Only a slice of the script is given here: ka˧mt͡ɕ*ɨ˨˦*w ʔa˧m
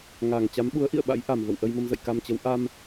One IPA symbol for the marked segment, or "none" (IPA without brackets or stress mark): ə˨˦